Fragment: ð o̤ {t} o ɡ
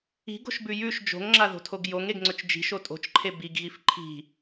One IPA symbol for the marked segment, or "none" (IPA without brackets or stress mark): tʰ